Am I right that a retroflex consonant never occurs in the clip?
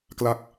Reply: yes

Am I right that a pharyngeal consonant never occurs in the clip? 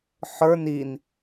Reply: no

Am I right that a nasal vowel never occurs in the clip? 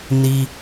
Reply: yes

